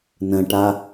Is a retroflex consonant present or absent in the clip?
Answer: present